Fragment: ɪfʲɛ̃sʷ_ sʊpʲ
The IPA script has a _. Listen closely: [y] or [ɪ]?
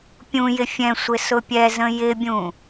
ɪ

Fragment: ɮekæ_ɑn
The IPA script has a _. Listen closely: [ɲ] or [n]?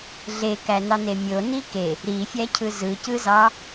n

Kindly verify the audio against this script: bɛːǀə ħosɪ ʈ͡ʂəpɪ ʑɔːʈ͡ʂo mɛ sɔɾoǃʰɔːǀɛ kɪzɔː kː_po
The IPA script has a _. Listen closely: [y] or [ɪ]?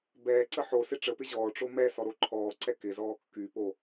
y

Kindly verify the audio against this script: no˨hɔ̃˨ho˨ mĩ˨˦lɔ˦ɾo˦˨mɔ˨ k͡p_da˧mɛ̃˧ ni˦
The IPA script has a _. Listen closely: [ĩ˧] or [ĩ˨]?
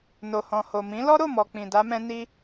ĩ˨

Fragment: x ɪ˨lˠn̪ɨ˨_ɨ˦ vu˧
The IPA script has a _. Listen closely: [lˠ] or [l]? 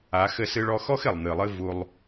lˠ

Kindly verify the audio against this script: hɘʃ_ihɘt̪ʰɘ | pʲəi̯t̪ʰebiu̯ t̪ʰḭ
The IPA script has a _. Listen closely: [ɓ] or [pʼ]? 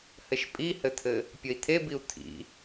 pʼ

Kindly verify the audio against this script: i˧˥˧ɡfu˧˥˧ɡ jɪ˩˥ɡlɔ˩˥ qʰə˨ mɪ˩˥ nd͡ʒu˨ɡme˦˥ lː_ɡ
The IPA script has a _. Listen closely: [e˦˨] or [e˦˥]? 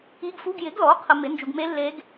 e˦˥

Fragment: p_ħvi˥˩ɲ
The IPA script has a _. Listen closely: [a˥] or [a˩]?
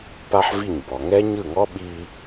a˥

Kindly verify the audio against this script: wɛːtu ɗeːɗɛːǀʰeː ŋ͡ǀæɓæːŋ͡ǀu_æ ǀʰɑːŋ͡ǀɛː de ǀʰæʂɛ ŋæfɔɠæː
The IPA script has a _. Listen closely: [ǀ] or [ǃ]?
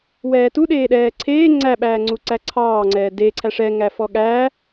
ǀ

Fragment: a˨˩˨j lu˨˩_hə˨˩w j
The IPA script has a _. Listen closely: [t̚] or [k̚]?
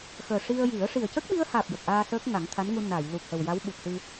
k̚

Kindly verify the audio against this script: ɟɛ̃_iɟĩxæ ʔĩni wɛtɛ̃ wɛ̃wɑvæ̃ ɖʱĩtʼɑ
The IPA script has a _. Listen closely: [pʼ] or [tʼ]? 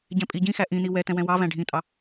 pʼ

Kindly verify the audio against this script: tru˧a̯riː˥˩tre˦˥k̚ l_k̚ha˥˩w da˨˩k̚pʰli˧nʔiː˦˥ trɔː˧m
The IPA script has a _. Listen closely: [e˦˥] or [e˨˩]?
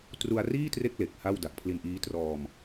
e˨˩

